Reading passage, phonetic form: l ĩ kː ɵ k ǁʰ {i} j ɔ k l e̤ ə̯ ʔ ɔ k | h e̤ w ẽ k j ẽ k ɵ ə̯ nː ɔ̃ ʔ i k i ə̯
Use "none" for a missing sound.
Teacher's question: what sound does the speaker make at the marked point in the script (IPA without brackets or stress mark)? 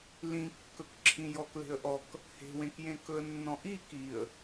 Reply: ĩ